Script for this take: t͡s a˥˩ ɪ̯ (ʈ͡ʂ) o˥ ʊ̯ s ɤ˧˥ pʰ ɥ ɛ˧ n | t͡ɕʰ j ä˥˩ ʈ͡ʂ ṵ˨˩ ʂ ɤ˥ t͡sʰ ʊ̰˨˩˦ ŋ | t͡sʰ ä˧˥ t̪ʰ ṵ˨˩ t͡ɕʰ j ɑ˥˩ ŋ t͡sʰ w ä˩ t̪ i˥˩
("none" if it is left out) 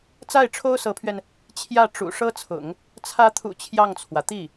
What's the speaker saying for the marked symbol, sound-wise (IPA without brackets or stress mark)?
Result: ʈ͡ʂʰ